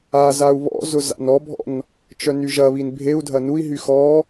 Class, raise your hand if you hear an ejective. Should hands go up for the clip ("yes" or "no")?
no